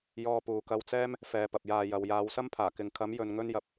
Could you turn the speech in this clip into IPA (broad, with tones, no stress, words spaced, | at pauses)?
jɔː˧puː˨kɐ˧wt͡sɛː˥m | fɛː˨pɐ˨p̚jaː˨ jɐ˨wjaː˨˧wsɐ˥mpʰaː˨˩ kɪ˨ŋkʰɐ˨˥mjɵ˨n ŋɵ˧njɐ˨p̚